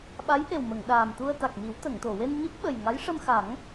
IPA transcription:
ɓ a˧˥ j ʔ e˨˩ w m ə˨˩˨ ŋ ɗ aː˨˩ m t̪ u˧ ə̯ t̪ a˨˩ k̚ m i˨˩˦ w t̪ ə˨˩˨ ŋ t̪ o˨˩˨ w e˧ n ɲ ɨ˦˥ p̚ ɓ ə˨˩ j ŋ a˧˥ j ʂ ə˧ m x a˨˩˦ ŋ

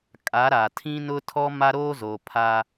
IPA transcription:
kʼ a˨˦ ɾ a˨ tʰ ĩ˦ n ʊ˦ tʰ ɔ˦ m a˦ ɾ oː˦ z o˨ pʰ a˦

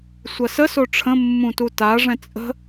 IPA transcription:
sʷ ɐ s ə s o ʈ͡ʂʰ ə̃ mː ũ t u t a ʐ ɛ̃ t͡sʼ ə̤

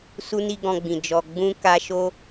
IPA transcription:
s u˦ n i˦ ɡ ɔ̃˧ ɡ͡b ĩ˨ d͡ʒ ɔ˨ ɡ͡b ũ˧ k a˧ ʃ o˦

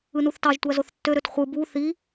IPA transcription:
ɯ n u θ t ɑ ʒ tʷ æ z o θ tː ø ɾ ø t χʷ ɯ b u θ i

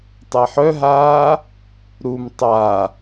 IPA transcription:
tˤ æ ħ œ ɦ aː | ɾ u m tˤ a

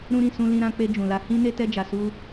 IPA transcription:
ɾ ũ˧ ɾ ĩ˨ s ũ˧ l ĩ˧ ɾ ã˧ k͡p e˧ d͡ʒ ũ˨ l a˧ h ĩ˦ n e˦ t ɛ˦ d͡ʒ a˧ s u˦

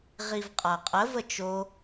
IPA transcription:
ʁ i v qʼ a qʼ ə v ə t͡ʃ o

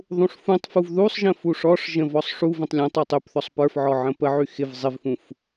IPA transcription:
ðˤ ũ ʂ f ũ tˤ f u v ð u sˤ ʒ ə̃ f u ʂ ɔ ʂ ʒ ə̃ v ɔ sˤ ʂ u v ə̃ tˤ lʲ ə̃ tˤ u tˤ y p θ ɔ sˤ p ə˞ f ʕ ɔ ʕ ə̃ p ə ʕ y x ɪ v zˤ ɪ v f ũ f

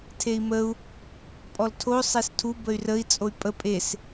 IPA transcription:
tʰ e i̯ m ə u̯ | pʼ ɔ l tʰ o sˤ e s tʰ u b ə y̯ r ə i̯ t͡sʼ o y̯ pʼ ə pʼ e s

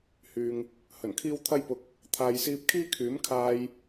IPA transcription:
h yː˨ ŋ | h ɵ˨˩ n kʰ iː˥ w t̪ʰ ɐ˥ j p ʊ˨ k̚ | t̪ʰ aː˨ j s iː˧ p̚ kʰ iː˥ kʰ yː˨˥ m kʰ aː˧ j

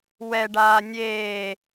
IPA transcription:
w ɛ ɖ aː nʲ eː

